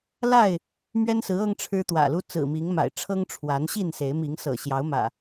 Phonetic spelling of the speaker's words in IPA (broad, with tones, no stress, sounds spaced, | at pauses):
l a˥˨ ɪ̯ | m ɥ ɛ˦ n s ɹ̩˨˦ ɤ˦ ŋ ʈ͡ʂʰ ɻ̩˦ t̪ w ä̰˨˩ l u˦ t͡s ɹ̩˨˩ m i˨˦ ŋ m a̰˨˩ ɪ̯ ʈ͡ʂʰ ɤ˦ ŋ ʈ͡ʂʰ w a˨˦ n ɕ i˥˨ n s e˨˦ ɪ̯ m i˨˦ ŋ s ɤ̰˨˩ ɕ j ɑ˨˦ ʊ̯ m ä̰˨˩